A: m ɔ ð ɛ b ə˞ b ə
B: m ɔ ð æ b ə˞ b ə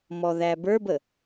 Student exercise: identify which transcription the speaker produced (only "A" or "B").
B